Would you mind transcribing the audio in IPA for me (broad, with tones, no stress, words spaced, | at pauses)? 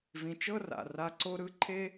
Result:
vĩ˨t͡ʃɤ˦ra̰˨ ra˦ ǀo˦ɾɯ˦ǃʰe˦